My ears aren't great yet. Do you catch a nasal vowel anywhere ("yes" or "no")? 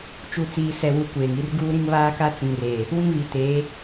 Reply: yes